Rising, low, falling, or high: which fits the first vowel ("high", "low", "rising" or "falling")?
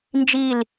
falling